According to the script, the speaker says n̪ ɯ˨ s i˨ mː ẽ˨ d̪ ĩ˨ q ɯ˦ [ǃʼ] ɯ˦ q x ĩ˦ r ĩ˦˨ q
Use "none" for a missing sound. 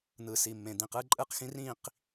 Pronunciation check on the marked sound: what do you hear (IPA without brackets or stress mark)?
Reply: ǃʼ